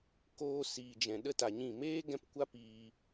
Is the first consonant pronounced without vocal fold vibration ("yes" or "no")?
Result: yes